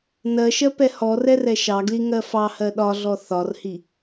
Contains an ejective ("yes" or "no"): no